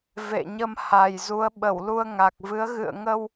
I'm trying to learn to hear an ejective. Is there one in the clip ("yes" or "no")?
no